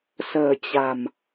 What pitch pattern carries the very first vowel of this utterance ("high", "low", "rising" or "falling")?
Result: low